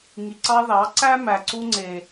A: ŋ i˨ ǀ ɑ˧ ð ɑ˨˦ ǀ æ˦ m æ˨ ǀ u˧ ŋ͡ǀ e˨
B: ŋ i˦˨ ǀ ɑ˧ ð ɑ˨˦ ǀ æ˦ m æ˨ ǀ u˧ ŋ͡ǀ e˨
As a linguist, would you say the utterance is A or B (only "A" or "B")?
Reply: A